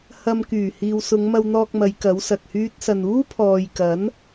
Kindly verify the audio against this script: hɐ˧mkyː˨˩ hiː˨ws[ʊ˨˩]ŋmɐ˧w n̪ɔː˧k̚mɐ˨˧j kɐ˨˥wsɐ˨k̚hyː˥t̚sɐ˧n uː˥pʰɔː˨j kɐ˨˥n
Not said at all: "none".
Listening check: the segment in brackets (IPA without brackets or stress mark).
ʊ˨˧